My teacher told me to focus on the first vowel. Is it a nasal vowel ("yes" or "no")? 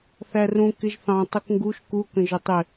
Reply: no